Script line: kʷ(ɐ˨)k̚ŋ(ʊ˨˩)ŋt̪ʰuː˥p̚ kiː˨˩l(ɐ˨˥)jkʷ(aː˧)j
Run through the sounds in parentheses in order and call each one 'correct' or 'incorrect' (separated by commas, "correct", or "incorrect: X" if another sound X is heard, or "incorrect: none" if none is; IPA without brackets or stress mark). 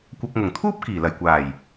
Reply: correct, correct, incorrect: ɐ˨˩, incorrect: aː˨˩